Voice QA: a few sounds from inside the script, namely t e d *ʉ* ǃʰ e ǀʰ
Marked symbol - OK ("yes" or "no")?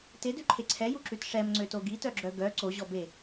yes